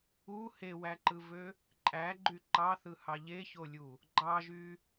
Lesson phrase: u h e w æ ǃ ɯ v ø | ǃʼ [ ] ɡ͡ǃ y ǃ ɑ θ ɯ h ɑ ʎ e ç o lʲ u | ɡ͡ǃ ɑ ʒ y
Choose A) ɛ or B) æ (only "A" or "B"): B